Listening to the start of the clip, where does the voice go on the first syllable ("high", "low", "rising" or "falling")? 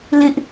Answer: high